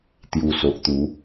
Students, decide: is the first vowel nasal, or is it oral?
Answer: oral